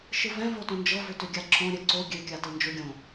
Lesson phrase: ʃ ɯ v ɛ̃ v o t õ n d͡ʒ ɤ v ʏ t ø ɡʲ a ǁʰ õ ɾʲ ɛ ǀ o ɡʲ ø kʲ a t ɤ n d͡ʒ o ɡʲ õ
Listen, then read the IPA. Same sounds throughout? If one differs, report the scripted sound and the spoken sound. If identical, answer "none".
none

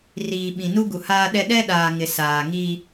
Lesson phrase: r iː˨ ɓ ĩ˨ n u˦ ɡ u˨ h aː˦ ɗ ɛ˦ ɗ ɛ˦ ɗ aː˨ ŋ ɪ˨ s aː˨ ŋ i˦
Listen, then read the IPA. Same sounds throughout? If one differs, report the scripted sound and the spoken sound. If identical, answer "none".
none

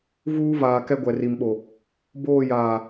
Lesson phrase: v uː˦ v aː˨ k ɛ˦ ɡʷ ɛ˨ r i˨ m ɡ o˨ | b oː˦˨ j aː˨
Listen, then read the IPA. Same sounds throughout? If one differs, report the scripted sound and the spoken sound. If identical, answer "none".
ɡ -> ɓ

